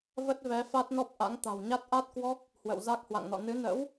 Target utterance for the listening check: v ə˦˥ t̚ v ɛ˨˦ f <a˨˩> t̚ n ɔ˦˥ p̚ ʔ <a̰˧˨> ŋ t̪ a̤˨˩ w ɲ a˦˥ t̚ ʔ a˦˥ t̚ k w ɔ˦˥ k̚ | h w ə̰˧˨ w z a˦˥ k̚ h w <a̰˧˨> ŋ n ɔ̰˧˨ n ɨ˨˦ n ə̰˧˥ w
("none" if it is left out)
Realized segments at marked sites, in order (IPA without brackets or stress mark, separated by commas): a˦˥, a̰˧˥, a̰˧˨